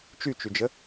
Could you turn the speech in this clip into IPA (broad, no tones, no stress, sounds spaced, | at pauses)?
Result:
t͡ʃ y t͡ʃ y d͡ʒ ə